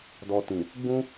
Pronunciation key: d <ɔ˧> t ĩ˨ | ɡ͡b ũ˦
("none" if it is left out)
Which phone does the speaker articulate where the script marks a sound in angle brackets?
ɔ˧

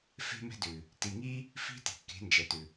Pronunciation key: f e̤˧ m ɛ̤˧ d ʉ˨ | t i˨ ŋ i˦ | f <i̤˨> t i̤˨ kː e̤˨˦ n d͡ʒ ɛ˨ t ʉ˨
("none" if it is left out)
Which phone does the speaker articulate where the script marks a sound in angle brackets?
i̤˦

